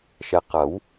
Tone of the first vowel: low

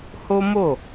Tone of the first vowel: high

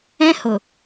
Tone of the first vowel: high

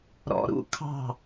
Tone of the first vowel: low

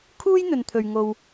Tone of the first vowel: high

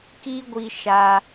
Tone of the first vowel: high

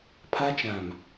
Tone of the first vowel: high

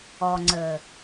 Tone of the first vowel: low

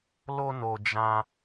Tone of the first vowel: high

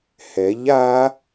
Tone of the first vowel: rising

